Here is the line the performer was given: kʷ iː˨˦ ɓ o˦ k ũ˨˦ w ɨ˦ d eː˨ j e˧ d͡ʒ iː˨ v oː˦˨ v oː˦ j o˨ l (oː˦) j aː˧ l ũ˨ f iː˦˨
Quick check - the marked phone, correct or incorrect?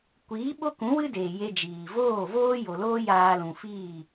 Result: correct